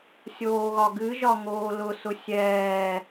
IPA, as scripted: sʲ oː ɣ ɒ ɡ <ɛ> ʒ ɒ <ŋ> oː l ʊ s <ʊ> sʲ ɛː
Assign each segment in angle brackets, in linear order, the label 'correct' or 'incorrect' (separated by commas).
incorrect, correct, correct